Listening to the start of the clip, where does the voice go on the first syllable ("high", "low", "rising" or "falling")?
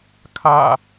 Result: falling